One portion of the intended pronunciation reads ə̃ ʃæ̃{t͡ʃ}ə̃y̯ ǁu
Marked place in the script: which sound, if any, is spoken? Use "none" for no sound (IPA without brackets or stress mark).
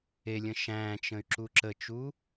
t͡ʃ